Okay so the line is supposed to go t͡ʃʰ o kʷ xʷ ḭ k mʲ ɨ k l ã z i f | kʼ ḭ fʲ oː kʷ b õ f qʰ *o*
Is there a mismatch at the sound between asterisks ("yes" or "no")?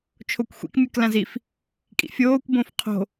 yes